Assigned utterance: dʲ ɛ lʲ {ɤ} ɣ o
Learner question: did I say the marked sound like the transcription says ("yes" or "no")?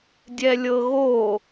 yes